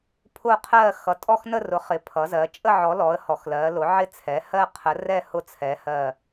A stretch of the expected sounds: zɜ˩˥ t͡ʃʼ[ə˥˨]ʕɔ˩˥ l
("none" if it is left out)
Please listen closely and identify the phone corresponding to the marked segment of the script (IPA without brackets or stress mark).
ə˥˨